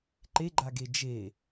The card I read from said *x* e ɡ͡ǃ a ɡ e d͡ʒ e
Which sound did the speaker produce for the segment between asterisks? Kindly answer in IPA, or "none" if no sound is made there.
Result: ǃ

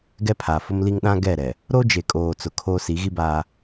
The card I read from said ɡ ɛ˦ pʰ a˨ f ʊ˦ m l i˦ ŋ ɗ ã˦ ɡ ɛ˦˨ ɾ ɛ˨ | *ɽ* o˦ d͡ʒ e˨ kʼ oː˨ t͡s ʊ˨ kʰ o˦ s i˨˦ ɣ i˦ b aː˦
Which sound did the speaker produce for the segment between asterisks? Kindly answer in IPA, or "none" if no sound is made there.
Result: ɾ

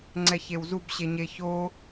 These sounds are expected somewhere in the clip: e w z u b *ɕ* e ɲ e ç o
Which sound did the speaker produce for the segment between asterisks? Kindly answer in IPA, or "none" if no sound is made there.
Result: ɕ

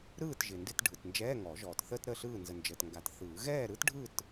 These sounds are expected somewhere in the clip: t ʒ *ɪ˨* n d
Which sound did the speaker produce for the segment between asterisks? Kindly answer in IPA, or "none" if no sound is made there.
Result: ɪ˨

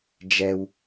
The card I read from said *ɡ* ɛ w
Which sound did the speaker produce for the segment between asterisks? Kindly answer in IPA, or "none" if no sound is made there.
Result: d͡ʒ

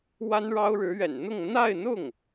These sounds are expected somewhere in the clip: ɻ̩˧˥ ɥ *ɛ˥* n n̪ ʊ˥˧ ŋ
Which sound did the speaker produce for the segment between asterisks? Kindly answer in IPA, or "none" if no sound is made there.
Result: ɛ̰˨˩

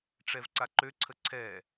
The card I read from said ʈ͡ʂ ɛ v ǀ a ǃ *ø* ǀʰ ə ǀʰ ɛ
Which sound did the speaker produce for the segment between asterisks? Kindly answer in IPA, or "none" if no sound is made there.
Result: ø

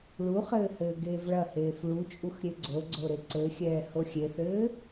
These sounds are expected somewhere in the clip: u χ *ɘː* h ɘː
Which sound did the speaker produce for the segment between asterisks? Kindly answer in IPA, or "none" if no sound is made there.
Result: ɘː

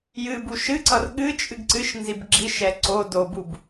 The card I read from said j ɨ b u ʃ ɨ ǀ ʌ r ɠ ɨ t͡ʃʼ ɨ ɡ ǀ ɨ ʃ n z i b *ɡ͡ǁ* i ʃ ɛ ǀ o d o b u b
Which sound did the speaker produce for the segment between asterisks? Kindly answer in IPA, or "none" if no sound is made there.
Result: ɡ͡ǁ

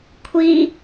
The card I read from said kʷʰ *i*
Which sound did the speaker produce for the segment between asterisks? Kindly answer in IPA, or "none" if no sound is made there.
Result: i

